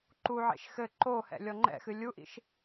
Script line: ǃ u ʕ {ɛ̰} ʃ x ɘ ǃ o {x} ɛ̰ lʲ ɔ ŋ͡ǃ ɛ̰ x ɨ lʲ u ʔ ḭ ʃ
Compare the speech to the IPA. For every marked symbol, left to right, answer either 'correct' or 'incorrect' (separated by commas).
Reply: incorrect, incorrect